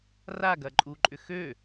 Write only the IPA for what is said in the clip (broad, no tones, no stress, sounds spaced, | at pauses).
r a ɡ ɐ ǃʼ u ǃʼ ʏ x ø